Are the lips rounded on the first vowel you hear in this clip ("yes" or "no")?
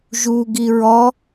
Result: yes